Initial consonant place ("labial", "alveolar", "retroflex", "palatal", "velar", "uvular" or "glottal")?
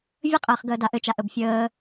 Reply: labial